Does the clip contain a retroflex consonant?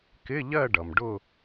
yes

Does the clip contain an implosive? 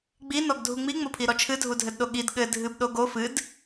yes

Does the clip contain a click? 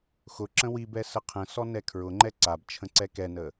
yes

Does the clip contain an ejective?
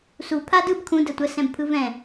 no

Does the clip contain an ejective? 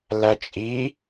yes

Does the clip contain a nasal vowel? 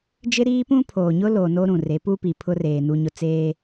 yes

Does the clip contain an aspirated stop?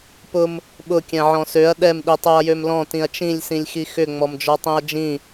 no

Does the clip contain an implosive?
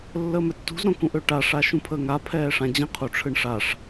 no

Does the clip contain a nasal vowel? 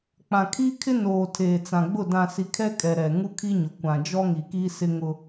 yes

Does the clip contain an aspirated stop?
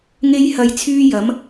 yes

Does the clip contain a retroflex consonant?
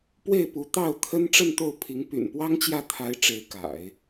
yes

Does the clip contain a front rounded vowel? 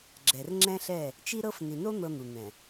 no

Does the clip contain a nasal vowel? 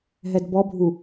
no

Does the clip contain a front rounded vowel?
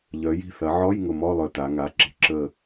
yes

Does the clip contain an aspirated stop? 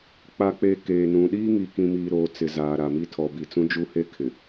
yes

